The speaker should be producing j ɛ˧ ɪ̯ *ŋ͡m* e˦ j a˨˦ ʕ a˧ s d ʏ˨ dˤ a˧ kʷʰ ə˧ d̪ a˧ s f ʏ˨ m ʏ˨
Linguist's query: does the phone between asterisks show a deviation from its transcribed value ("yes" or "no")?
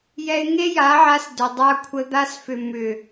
yes